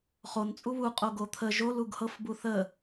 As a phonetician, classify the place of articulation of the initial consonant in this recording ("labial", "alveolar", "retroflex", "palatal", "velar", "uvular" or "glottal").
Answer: uvular